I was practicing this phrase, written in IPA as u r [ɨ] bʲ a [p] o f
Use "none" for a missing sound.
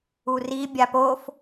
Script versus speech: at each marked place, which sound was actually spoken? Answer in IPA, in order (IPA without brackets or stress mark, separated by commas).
i, p